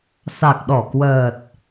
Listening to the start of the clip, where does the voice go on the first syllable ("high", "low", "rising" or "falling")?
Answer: low